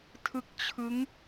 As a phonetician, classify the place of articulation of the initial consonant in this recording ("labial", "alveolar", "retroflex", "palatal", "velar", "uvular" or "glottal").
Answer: alveolar